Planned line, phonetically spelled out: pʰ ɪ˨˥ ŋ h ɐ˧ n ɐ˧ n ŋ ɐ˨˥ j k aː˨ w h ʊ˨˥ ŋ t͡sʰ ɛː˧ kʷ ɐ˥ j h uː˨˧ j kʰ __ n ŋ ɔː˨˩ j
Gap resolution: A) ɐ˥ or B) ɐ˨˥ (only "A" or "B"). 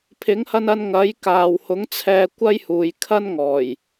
A